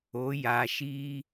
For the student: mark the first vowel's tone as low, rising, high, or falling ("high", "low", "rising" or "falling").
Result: rising